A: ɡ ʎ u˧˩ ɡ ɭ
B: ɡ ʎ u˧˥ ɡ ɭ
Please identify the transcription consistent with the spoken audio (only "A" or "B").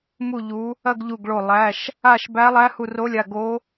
A